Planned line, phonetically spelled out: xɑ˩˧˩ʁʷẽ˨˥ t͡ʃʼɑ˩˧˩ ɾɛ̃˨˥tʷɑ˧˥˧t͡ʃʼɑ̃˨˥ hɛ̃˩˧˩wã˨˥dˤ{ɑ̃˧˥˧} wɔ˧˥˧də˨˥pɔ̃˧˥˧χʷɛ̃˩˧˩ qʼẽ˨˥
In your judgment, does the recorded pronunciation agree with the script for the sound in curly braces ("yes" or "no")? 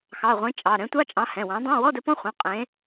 yes